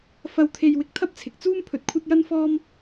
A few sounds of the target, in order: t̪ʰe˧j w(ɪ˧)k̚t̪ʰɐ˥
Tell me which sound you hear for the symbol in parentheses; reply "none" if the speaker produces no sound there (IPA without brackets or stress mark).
ɪ˧